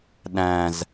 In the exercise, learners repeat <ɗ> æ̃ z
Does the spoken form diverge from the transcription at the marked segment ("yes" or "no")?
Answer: no